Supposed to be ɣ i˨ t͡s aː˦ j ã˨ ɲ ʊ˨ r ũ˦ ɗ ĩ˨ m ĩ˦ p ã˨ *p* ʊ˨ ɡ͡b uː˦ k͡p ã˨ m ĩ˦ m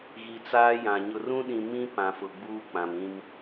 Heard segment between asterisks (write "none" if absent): f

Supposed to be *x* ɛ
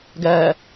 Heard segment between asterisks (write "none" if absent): ɡ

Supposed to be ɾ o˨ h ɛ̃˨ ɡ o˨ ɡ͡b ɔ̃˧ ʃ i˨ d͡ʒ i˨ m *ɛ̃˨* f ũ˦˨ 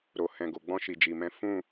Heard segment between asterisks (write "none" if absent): ɛ̃˨˦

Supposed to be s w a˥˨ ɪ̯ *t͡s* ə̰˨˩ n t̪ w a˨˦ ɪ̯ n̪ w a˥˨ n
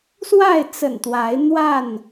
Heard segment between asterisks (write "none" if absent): t͡s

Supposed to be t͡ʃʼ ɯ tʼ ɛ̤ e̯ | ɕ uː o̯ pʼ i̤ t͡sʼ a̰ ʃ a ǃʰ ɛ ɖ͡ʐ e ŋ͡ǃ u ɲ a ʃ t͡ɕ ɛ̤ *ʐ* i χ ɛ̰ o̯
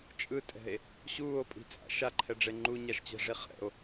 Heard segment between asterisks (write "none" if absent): ʐ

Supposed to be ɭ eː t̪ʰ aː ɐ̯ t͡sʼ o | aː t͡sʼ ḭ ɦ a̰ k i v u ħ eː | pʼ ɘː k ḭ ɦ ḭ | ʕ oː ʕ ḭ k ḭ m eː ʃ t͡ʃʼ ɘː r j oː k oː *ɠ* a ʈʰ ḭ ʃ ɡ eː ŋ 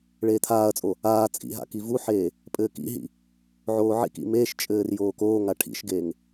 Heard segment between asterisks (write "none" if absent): ŋ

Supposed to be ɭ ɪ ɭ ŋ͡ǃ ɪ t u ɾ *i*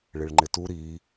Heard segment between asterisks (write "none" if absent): i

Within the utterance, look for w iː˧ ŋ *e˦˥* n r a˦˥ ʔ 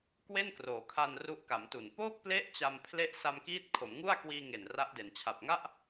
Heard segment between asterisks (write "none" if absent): e˨˩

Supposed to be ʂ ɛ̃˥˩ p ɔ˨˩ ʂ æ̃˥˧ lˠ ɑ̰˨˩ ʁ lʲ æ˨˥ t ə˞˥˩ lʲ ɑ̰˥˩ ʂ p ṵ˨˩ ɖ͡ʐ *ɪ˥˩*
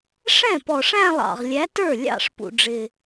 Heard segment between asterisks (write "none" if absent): ɪ˨˩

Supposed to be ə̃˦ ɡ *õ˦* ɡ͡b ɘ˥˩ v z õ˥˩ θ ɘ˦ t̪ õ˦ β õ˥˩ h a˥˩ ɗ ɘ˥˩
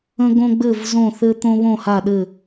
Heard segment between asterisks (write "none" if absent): õ˦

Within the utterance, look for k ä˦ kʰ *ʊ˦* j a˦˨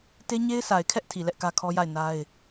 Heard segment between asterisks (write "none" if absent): ɔ˦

